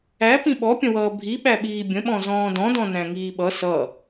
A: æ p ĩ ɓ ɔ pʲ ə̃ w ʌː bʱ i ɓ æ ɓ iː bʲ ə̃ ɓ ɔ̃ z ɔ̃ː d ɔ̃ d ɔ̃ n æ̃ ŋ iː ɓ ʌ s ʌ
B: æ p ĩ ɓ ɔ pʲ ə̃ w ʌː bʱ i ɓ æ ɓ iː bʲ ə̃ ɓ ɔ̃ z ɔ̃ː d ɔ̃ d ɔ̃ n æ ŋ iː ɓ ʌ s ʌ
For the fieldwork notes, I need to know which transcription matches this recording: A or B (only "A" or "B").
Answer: A